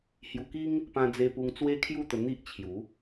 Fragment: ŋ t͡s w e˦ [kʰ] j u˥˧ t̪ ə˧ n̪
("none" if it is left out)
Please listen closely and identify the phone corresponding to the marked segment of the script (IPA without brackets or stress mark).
kʰ